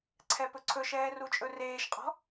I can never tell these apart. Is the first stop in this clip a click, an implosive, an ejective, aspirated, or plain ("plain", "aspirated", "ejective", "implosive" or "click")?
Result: click